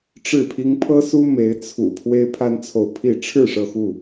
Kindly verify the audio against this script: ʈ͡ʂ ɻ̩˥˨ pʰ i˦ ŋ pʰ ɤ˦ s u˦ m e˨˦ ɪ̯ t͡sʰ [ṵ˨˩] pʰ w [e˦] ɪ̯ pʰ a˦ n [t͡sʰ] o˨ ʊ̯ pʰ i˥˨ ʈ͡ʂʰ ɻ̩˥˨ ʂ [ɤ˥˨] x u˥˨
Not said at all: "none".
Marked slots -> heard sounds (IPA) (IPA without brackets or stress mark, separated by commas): ṵ˨˩, e˦, t͡sʰ, ɤ˥˨